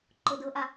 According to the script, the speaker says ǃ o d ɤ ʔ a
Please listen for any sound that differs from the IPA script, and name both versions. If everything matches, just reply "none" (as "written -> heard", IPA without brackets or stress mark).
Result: none